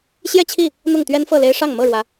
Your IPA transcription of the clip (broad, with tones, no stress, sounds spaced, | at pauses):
ɕ j ɛ˥˨ t͡ɕʰ i˥˨ | n̪ ʊ˥˨ ŋ t̪ ɥ ɛ˦ n f ɤ˥˨ l e˦ ɪ̯ ʂ ɑ˥˨ ŋ m ɤ˥˨ ɻ w ä˨˦